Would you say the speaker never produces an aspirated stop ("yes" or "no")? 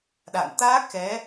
yes